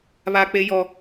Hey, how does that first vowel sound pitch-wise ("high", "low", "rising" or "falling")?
high